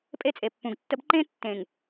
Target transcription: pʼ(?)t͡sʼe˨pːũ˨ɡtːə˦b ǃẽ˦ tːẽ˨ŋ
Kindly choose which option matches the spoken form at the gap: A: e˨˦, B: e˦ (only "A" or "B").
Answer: B